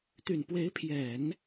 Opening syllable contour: low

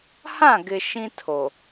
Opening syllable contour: falling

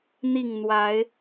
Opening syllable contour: falling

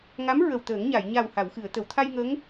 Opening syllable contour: rising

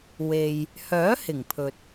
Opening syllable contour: low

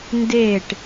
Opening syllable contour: falling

